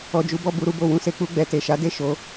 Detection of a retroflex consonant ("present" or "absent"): absent